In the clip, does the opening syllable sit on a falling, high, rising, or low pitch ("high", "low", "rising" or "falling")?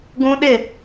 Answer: high